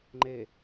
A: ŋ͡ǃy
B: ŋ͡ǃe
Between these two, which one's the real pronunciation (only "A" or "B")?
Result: B